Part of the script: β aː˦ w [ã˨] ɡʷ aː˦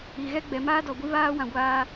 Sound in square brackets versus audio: correct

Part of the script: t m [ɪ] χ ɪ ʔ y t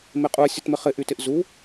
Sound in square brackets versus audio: correct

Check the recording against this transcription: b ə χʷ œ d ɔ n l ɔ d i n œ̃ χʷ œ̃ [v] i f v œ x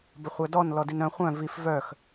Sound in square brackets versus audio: correct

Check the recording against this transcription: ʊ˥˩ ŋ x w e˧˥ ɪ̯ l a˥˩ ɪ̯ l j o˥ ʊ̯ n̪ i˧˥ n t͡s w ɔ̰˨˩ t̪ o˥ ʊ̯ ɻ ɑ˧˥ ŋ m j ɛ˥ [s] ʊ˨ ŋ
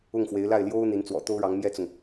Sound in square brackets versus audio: incorrect: t͡s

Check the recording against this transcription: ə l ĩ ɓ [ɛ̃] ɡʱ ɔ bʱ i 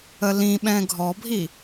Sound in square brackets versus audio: correct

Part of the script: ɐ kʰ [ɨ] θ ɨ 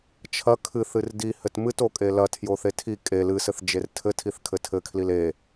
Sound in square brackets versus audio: correct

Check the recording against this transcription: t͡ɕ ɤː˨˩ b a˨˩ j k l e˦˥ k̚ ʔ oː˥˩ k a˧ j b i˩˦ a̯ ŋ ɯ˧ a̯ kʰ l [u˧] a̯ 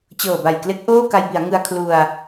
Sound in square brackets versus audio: correct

